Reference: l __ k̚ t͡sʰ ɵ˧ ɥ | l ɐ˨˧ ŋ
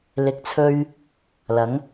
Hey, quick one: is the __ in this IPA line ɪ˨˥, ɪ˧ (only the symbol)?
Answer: ɪ˨˥